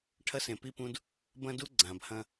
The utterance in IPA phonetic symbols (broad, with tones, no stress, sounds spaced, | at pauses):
ʈʰ ɐ˦ s ẽ˨ p i˦ p ũ˦ d | b ɐ̃˦ d u˦ ɡ͡ǀ ã˨ b h ɐ̃˦